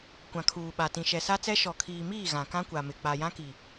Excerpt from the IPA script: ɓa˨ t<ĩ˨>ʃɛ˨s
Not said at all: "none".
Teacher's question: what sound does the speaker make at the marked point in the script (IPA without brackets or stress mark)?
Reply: ĩ˨